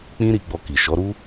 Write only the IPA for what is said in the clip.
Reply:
k͡pĩ˦ɾi˧ɡ͡bɔ˧ ki˨ ʃɔ˨˦ɾu˦

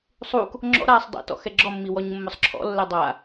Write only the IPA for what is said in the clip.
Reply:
sˤuk | ŋ͡ǁɔ̰ɾaːsˤ dˤḭtɔ̰ xɛɡ͡ǁɔmːi wɔɲmːʊsˤǁʰɔ̰lːɛ dˤa

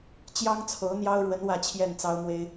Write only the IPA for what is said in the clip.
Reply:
t͡ɕjɑ˥ŋt͡sʰo˧˥ʊ̯n̪jɑ˥ʊ̯ɻwə˧˥n wä˥˧t͡ɕʰjɛ˥˩nt͡sɑ˥ʊ̯mwe˥ɪ̯

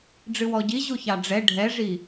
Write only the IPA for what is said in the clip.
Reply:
ɖ͡ʐɨwɔɟiʑu çɑɖ͡ʐɛ ɖʱɛʐi

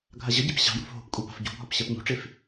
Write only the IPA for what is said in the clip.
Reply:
ɡʱaʑəɟep ɕɑ̤jo̤f ɦo̤pkʷʼi pa̤fɟo̤bɦɒp ɕɜpɲo̤ʈ͡ʂef

